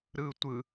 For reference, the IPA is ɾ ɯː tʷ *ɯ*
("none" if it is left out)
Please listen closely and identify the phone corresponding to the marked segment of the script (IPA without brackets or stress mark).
ɯ